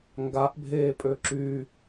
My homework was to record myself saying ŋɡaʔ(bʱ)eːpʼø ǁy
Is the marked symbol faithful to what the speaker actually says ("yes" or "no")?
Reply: yes